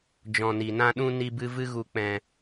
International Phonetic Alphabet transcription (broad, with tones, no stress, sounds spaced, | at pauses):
d͡ʒ ɔ̃˧ n i˧ n ã˦ ɗ ũ˦ n i˦ b ɨ˦ v ɨ˦ ɣ u˧ k͡p ɛ̃˧